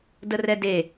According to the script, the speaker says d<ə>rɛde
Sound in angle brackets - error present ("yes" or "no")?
no